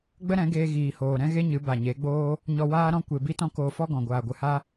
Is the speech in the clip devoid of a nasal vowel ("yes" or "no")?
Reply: no